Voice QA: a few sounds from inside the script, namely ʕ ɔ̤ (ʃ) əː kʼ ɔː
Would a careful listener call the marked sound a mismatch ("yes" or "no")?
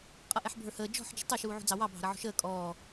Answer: no